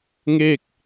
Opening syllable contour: falling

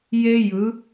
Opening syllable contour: high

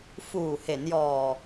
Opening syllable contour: low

